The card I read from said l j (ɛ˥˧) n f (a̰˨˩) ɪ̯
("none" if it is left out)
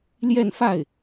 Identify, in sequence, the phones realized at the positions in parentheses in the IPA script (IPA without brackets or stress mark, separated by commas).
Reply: ɛ˥˧, a˥˩